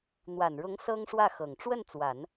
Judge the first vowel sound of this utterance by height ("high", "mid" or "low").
low